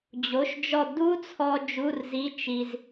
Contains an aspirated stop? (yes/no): yes